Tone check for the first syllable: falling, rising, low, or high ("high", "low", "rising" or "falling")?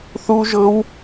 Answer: high